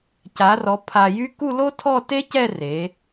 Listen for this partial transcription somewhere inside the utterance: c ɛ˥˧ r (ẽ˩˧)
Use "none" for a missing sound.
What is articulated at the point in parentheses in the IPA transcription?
e˩˧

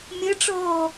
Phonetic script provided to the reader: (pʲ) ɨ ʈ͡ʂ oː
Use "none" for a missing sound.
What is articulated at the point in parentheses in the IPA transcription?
mʲ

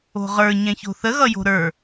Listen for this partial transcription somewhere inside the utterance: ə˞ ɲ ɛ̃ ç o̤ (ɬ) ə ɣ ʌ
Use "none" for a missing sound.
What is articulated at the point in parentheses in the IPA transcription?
θ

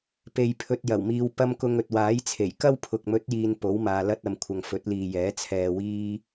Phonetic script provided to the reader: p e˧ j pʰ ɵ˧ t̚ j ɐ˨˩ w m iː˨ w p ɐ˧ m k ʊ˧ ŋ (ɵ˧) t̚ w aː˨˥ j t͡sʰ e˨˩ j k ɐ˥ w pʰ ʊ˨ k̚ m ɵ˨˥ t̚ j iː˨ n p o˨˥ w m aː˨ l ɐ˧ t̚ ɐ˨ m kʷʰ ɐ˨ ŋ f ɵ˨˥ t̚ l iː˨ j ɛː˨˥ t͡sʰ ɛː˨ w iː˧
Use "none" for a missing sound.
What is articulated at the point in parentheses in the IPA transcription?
ɵ˨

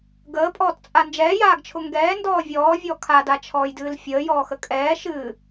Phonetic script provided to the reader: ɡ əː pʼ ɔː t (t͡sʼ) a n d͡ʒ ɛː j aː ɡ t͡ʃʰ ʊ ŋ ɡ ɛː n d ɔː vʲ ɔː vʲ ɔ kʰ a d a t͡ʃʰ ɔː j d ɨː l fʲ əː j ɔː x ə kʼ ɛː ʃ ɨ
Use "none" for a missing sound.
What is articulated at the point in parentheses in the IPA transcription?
t͡sʼ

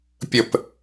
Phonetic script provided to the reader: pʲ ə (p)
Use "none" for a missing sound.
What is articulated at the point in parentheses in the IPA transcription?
p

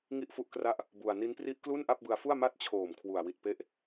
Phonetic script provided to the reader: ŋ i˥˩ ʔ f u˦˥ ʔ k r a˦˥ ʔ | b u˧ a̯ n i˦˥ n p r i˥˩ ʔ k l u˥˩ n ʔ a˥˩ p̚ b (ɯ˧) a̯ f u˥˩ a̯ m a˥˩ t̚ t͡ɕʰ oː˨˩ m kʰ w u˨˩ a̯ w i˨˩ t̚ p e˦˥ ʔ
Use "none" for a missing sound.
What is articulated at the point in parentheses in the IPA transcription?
ɯ˧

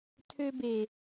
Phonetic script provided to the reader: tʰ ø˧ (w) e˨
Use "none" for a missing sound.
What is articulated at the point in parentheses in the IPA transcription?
b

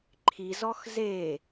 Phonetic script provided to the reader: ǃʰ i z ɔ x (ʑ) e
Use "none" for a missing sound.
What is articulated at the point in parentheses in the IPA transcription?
z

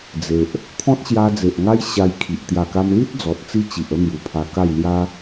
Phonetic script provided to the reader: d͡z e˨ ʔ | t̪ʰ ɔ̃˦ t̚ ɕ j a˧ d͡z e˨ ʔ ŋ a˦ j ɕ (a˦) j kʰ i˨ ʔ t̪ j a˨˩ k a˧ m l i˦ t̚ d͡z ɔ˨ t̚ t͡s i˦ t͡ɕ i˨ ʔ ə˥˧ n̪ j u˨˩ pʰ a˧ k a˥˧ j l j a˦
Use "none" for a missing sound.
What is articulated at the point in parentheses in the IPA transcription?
a˧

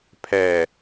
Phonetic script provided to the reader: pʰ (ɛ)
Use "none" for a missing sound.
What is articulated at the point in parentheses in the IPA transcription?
ɛ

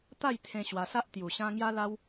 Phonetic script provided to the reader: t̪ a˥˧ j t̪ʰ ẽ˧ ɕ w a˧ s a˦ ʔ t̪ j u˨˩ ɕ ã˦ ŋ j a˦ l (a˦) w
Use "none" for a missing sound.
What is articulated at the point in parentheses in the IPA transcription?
a˦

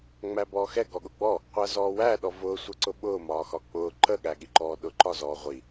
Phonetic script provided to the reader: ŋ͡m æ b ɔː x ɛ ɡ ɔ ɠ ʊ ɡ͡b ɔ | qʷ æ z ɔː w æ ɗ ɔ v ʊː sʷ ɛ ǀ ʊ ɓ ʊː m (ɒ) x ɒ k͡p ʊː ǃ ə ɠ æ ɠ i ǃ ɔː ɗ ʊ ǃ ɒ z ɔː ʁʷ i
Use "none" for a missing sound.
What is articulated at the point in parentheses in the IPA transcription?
ɒː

